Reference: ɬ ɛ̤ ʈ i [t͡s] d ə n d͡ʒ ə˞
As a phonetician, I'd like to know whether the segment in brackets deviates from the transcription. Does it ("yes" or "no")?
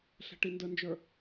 yes